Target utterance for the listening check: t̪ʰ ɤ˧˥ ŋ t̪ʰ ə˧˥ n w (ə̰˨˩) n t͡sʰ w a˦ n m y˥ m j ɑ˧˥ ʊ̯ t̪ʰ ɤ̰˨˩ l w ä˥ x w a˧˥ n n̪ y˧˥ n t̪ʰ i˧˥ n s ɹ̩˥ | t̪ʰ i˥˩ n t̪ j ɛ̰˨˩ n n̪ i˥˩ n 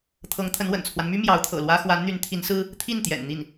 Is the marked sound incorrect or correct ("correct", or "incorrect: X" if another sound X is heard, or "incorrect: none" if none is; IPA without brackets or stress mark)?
correct